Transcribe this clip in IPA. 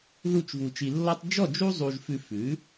ð u˥˨ t͡ʃ v u˧ t͡ʃ i˧ lː ɔ˥ tˤ d͡ʒ ɔ˥˨ d͡ʒ u˥ zˤ u˧ ʒ f ʉ˧ f ʉ˩˥

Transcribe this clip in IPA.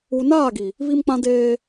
u˨ n aː˦˨ ɡ i˨ | β i˦ m k͡p ã˦ d eː˦

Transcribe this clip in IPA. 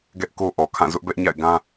ɡ ɛ˦ ʔ k o˦ ʔ ɔ˨ kʰ ã˦˨ z ʊ˦ ʔ b ɛ˦ ʔ ɲ a̰˦˨ ɪ̯ ɡ ã˦

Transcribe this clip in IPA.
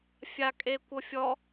fʲ a kʼ e kʷ ɤ fʲ ɔ

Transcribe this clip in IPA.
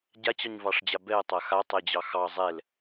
ɟ a t͡ɕ ɑ ɲ v ɑ ʂ d͡ʑ a b ɛ ɐ̯ tˤ a x a tˤ ɛ d͡ʑ ɑ x ɑ zˤ ɛ l

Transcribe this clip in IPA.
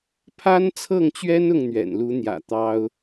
pʰ a˥ n t͡sʰ ɤ˥˩ ŋ t͡ɕ ɥ ɛ˥ n ʊ˥˩ ŋ n̪ ɥ ɛ̰˨˩ n l u˧˥ n̪ j ä̰˨˩ t̪ ɑ˥ ʊ̯

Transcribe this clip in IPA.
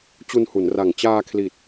t͡ɕ u˧ n h u˩˦ n r a˨˩ ŋ t͡ɕ aː˧ kʰ l i˨˩ t̚

